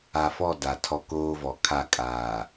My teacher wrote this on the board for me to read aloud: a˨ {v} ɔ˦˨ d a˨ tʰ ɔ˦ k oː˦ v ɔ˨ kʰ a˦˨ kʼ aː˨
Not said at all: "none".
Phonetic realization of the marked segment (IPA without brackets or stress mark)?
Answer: f